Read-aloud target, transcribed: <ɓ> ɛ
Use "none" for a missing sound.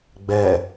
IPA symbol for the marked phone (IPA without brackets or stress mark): ɡ͡b